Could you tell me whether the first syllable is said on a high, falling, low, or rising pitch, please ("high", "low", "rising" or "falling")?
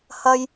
high